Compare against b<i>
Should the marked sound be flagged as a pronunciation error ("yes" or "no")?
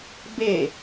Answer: yes